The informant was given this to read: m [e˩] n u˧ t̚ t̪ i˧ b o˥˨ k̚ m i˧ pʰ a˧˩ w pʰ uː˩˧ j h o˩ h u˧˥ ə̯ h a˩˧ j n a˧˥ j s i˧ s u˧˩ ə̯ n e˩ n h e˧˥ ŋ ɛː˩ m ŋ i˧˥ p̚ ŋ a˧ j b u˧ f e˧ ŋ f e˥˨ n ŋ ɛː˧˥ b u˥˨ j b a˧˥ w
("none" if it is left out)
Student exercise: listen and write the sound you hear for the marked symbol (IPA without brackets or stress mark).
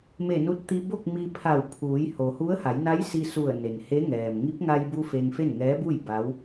e˧˩